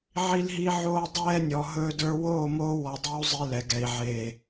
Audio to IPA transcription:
ʕ i˦ l ɦ i˦ ʕ oː˦ dˤ ɛː˦ nʲ ɔ˨ ɦ ɵː˦ d ə˞˦ w oː˦˨ m oː˦ w ɔ˨ dˤ e˦ u̯ zˤ i˦ l ɛ˨ ɡ ɛ˨ i̯ ʕ eː˨

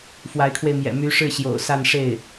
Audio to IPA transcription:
f w a˧˥ ɪ̯ kʰ w e˧ ɪ̯ m j ɛ̰˨˩ m y˧˥ ʂ ɻ̩˥˩ ɕ j o̰˨˩ ʊ̯ s a˥˧ n ʂ e˥˩ ɪ̯

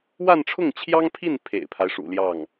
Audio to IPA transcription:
w a˥˧ n ʈ͡ʂʰ ʊ˥˩ ŋ t͡ɕʰ j ɑ˥ ŋ pʰ i˥˩ n pʰ ḛ˨˩ ɪ̯ pʰ a˦ ɪ̯ ʂ ṵ˨˩ l j ɑ˥˩ ŋ

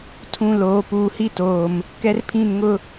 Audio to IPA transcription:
tʰ ũ˦ l oː˨˦ p uː˨ h i˦ t oː˨ m | k ɛ˦ r pʰ ĩ˦˨ n ŋ ʊ˦

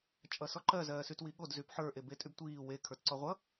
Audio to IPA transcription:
t͡ʃʼ ʌ s ɔ ǃ ɜ z ɜː s y t w i ɠ o d z y p ħ ə˞ ʔ e b e tʼ y b tʷ iː w e kʰ ə˞ t ǀ ɔ ʁʷ ʌ

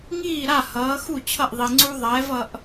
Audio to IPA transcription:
ŋ iː˥˩ ɾ a˥˩ h ʌː˨˥ x u˥˩ t͡ɕʰ ʌ˥˩ ʔ ðˤ i˨ ŋ͡ǀ u˦ ðˤ ɛː˨˥ v ʌ˦ ʔ

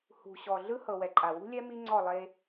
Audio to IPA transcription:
h ṳ˨ ɕ ɔ˨ ɮ ɯ˦ h ɤ˨ w ɛ˨ ǃʼ a˨ w ṳ˦ lʲ ɛ˦ m i˦ ŋ͡ǀ ɔ˦˨ lˠ e˦

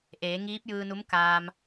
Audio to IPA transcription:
ʔ eː˩˧ ŋ iː˧˥ p̚ j ɯː˧ n u˧˥ m k aː˧ m

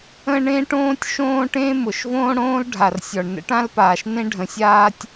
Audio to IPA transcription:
ə̃˥ ɳ ẽ˥ ʈ õː˥ tʲ ʃ õː˥ ʈ ẽ˥ m ʊ˩ ʃ v õː˥ ɽ õː˥ l ɖʱ a˩ r sʲ ɔ˩ ɳ n ə̰˥ ʈ ã˥ l p aː˩ ʃ n ẽ˥ ɖʱ ə̃˩ sʲ aː˥ tʲ

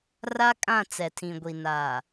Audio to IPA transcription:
r a˦ kʼ ã˦˨ t͡s ɛ˨ tʰ ĩ˨ ɡʷ i˨ n a˨

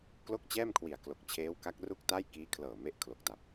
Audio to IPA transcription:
k l o˥˩ k̚ t͡ɕ ɛː˥˩ m kʰ w i˨˩ a̯ k l o˨˩ k̚ t͡ɕʰ eː˦˥ w k a˦˥ k̚ r u˥˩ k̚ t a˥˩ j k iː˦˥ kʰ l ɤː˨˩ m e˦˥ ʔ kʰ l o˨˩ k̚ t a˨˩ p̚

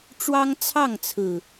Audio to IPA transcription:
ʈ͡ʂ w ɑ˦ ŋ t͡sʰ ɑ˥˨ ŋ t͡sʰ ɹ̩˨˩

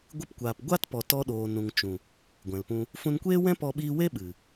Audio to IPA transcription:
ɡʷ ɨ˧ p kʷ aː˨ p ɡʷ a˦ t p ɔ˨ t ɔ˧ ɗ oː˨ n ũ˨ ŋ t͡ʃ ũ˨ | ɡʷ ɛ̃˨ l p ũ˧ | f ũ˧ n kʷ eː˦ w ɛ̃˦ p ɔ˧ ɓ iː˧ w e˦ ɓ ɨ˨

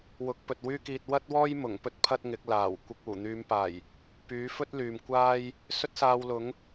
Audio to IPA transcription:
w ʊ˨˥ k̚ p ɵ˨ t̚ w yː˥ k iː˧ t̚ w ɐ˥ t̚ w ɔː˥ j m ʊ˨˩ ŋ p ɵ˥ t̚ pʰ ɐ˥ t̚ ŋ ɪ˨˥ k̚ l aː˨˩ w kʷ ɪ˨ k̚ uː˨˩ n̪ yː˨˧ m p aː˨˩ j | p yː˨˥ f ɵ˥ t̚ l yː˨ m kʷ aː˥ j | s ɵ˥ t̚ s aː˧ w l ʊ˨˥ ŋ

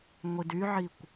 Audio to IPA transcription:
ŋʷ i d y ʕ i kʷ

